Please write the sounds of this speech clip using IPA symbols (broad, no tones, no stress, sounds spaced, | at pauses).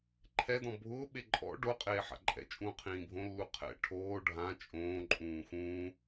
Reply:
ǃʰ ɛ d ɔ̃ bʱ ʊː ɓ e ǃʼ ɔ̰ ɖ o qʼ eː ħ a̰ ǃʼ ɛ̰ t͡ʃʼ ũː qʰ ĩː bʱ õ lː u qʰ ɛ̰ ʈʰ oː ɖʱ ã t͡ʃʼ õː ǃʼ ũː x ũː